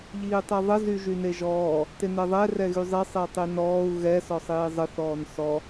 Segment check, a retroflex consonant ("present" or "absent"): absent